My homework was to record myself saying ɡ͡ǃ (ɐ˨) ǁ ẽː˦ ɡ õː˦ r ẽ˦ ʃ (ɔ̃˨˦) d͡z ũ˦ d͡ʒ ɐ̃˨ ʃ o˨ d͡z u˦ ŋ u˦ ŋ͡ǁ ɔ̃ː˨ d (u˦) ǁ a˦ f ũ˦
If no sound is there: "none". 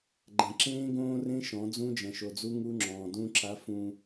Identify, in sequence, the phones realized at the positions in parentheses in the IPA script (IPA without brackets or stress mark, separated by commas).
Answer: ɐ̃˨, ɔ̃˨˦, ũ˦